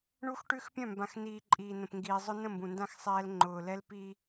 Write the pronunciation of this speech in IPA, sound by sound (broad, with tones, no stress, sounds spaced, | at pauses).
ɳ u˦ x ʈ ʉ˦ x pʲ œ̃˦˨ m b ã˨ x n iː˨ ǃʼ iː˨ n ə̃˨ p ŋ ɡ iː˨ zˤ ʊ˦ n ə̃˦˨ m b ũ˨ n d ã˦ x sˤ ɛː˦ l ŋ͡ǃ ʊː˨ l ɛ˦ l p i˦